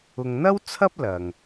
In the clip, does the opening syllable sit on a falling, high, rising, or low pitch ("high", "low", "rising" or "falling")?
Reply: low